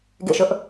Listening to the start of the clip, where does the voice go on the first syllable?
falling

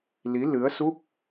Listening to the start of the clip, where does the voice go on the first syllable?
rising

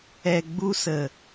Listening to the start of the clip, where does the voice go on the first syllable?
low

